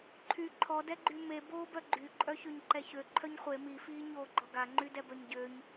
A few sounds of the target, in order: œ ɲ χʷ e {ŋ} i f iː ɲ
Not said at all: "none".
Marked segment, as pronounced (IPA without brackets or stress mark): m